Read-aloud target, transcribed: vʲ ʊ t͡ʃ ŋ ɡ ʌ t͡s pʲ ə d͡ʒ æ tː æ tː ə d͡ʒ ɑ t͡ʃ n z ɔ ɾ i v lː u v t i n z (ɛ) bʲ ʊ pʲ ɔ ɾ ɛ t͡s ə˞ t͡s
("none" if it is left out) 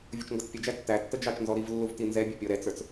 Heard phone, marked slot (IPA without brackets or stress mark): ɛ